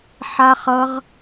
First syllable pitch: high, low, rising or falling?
high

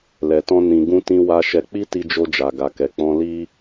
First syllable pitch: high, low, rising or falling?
low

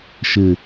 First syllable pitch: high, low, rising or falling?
low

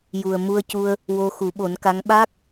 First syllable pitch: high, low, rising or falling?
low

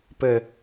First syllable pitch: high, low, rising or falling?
low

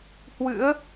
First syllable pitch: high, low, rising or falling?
rising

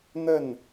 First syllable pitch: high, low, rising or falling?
falling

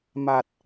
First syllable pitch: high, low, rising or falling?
low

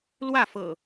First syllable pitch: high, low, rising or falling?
falling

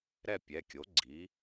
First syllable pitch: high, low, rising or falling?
falling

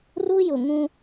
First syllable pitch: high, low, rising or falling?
high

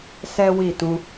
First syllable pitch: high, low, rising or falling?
high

